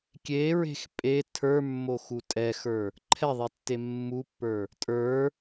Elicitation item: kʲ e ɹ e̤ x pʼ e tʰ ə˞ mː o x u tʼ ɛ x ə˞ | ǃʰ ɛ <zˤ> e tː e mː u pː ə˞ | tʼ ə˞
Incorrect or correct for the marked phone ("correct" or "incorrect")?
incorrect